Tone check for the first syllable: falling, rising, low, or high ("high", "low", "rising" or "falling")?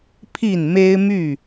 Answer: falling